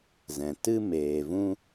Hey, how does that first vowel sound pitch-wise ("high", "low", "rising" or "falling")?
low